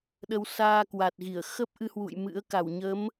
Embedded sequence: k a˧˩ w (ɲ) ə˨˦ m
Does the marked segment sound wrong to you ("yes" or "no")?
no